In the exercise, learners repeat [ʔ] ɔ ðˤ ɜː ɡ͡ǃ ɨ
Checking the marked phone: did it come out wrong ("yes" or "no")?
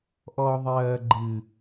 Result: no